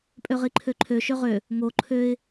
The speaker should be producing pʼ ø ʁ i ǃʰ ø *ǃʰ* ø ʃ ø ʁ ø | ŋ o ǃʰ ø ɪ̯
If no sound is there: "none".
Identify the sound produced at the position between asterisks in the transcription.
ǃʰ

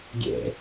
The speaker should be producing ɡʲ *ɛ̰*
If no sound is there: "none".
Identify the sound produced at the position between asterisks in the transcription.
ɛ̰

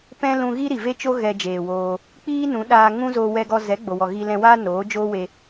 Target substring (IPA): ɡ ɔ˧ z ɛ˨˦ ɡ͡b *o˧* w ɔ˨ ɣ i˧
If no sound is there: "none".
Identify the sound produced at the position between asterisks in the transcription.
o˨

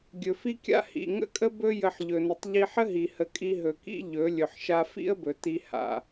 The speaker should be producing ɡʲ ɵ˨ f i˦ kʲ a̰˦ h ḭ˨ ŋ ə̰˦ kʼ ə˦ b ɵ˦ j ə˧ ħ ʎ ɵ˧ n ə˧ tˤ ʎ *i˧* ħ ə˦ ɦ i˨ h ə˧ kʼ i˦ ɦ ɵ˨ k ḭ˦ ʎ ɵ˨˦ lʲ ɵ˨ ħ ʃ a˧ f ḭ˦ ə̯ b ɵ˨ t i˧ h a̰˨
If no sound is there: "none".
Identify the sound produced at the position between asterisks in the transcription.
i˧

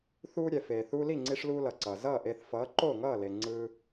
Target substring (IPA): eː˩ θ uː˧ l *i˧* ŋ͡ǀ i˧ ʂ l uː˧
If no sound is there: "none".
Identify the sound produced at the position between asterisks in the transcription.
i˥˩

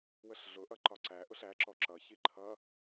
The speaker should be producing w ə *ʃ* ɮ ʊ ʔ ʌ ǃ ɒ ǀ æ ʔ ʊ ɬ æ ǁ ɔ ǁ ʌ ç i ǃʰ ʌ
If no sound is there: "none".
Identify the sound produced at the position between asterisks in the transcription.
ɬ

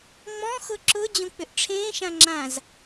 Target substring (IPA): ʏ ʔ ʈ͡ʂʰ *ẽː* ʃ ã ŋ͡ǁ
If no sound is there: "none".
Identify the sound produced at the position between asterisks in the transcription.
ẽː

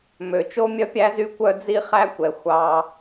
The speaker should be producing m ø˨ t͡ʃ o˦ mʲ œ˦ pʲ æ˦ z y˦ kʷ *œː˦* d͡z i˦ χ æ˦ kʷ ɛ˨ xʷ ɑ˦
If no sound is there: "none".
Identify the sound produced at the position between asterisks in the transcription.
œ˦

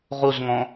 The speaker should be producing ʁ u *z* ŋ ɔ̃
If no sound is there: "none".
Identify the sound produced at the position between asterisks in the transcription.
z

